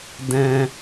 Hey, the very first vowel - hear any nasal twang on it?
yes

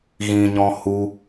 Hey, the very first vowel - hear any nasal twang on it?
yes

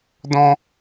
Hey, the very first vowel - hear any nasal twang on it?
yes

